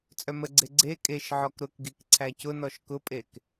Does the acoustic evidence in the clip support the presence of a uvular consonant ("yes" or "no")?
no